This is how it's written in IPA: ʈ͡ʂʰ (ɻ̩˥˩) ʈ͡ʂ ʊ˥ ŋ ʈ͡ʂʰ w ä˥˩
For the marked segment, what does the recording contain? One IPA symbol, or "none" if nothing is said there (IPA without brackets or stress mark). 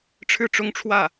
ɻ̩˥˩